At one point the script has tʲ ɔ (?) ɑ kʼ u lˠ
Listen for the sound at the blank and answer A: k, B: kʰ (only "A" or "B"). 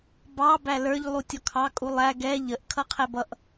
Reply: B